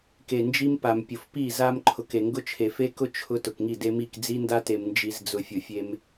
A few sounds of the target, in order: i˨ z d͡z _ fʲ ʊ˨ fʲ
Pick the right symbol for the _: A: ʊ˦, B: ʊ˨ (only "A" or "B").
B